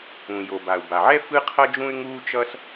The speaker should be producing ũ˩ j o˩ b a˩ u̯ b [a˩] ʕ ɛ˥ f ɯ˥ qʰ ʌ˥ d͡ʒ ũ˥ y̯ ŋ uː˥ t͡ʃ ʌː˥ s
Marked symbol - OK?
yes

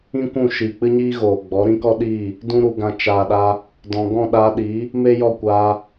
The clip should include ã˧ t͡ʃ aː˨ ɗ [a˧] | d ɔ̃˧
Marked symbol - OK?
yes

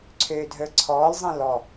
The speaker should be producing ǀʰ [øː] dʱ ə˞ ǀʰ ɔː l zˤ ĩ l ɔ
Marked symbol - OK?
yes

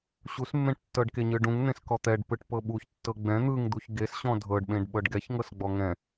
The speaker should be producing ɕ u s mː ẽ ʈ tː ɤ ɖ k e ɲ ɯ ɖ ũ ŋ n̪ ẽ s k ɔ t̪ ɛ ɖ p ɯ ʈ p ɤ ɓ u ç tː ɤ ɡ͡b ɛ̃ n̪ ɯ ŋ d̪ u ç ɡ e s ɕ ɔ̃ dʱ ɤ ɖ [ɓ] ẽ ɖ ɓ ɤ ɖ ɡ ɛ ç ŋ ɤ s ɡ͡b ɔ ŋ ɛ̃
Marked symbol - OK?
yes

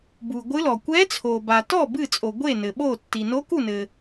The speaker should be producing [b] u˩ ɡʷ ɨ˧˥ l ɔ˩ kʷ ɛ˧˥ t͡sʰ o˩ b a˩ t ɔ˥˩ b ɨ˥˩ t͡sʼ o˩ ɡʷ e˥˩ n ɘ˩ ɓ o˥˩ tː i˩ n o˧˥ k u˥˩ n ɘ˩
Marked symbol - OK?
yes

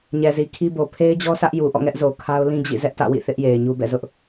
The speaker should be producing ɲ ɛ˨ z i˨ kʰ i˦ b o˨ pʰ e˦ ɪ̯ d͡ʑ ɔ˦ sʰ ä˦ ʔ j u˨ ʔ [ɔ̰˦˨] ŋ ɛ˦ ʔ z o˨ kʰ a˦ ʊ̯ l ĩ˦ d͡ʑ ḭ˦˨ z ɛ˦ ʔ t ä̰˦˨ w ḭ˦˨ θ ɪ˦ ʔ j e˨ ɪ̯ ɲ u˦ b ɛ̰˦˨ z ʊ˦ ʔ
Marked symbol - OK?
yes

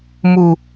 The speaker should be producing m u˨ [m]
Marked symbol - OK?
no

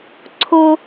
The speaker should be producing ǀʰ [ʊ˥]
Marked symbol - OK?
yes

